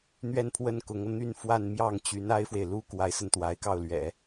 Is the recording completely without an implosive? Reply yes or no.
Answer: yes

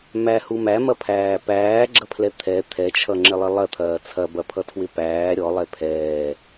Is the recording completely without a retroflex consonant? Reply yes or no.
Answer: yes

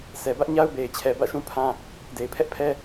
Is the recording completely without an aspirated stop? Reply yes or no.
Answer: no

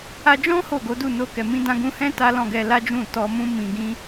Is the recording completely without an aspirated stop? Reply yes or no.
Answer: yes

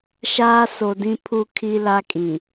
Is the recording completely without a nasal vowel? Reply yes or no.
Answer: no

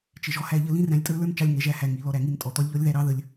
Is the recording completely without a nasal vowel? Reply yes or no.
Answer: no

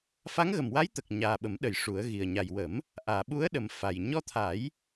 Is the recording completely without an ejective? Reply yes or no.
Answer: yes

